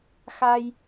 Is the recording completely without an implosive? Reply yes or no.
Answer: yes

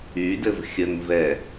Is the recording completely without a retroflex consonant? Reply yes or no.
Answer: yes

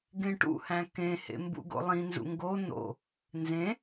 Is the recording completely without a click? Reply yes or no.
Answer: yes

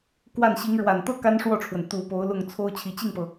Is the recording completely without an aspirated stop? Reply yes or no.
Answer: no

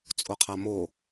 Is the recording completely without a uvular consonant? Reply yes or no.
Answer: no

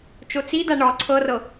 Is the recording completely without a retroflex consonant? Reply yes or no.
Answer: no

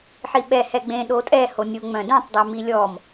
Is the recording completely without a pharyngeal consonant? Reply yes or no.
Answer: no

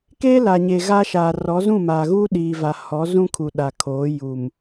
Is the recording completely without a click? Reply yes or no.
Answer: yes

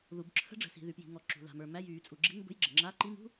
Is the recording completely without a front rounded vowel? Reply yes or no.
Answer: no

